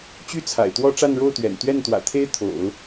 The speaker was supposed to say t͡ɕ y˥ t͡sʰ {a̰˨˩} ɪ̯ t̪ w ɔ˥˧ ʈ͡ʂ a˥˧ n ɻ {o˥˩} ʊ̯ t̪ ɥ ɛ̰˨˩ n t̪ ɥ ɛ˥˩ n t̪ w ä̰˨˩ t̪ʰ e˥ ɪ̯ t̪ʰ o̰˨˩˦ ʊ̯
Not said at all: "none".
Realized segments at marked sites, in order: a̰˨˩, o˥˩

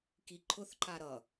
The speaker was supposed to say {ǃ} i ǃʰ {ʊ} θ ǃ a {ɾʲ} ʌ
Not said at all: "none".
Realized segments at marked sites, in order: k, ʊ, ɾ

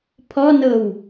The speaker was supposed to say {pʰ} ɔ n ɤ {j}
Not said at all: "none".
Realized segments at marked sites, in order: pʰ, w

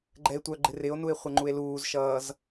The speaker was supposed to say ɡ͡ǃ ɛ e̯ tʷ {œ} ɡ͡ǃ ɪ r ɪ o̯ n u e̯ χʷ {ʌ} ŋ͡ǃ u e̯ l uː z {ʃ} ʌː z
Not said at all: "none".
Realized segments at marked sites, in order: œ, ʌ, ʃ

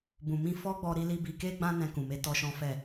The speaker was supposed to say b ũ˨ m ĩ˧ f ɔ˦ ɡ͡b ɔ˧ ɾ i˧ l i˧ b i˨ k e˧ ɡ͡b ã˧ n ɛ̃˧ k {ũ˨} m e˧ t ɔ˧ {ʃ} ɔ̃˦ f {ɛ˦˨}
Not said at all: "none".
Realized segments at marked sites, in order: ũ˨, ʃ, ɛ˦˨

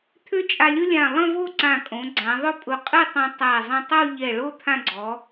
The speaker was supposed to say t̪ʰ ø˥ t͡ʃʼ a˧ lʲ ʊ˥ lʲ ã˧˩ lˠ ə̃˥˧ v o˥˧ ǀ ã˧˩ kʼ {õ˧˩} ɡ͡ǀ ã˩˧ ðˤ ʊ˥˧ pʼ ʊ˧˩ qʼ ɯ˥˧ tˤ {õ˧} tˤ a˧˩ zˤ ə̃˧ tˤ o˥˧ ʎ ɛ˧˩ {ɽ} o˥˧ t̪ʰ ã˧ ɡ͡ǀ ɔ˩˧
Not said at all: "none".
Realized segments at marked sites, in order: õ˩˧, õ˧, ɭ

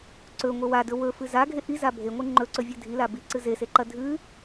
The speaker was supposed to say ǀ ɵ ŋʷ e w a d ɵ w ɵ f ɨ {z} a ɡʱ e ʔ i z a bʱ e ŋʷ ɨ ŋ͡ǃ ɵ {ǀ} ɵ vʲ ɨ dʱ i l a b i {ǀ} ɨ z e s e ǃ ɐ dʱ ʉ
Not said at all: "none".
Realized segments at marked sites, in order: z, ǀ, ǀ

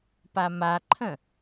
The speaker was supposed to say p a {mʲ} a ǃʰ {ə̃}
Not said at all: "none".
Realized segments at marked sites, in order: m, ə̃

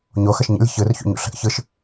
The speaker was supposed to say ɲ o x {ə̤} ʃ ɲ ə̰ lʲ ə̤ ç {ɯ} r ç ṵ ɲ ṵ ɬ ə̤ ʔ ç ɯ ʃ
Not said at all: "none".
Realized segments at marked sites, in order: ə, ɯ

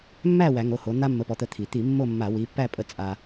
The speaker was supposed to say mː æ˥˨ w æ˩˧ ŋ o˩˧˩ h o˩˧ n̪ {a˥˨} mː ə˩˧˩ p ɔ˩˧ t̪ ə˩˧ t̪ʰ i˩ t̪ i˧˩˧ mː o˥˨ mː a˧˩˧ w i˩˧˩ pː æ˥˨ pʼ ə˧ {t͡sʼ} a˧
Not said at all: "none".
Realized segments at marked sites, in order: a˧, t͡sʼ

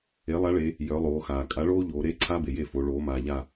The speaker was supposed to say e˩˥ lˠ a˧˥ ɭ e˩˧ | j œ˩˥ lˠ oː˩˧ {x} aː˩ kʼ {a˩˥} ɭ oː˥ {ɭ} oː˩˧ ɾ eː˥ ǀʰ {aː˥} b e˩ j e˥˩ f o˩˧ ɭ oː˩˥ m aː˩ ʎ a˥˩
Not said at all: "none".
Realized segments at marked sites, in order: x, a˩˥, ʎ, aː˥

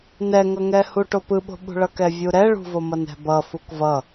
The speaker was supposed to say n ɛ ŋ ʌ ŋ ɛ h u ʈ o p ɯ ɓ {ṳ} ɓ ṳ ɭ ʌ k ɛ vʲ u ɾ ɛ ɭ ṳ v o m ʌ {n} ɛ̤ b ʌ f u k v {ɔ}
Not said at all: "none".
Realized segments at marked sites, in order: o̤, n, ʌ

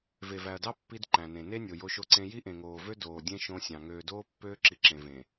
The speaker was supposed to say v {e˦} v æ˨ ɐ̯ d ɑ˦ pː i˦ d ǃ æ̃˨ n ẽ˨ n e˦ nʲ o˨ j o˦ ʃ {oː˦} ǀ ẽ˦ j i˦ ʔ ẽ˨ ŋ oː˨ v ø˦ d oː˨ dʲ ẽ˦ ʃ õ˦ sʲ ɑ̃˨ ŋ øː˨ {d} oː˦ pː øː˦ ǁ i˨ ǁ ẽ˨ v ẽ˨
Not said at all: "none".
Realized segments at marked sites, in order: e˨, o˦, d

